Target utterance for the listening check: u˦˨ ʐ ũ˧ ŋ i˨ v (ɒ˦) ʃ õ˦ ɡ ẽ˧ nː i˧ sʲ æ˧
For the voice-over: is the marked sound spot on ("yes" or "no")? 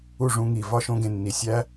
yes